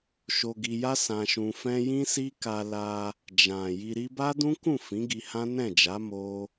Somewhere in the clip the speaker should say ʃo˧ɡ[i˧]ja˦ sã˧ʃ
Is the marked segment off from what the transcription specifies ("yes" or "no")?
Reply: no